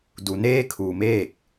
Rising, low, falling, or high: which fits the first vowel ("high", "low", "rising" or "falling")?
low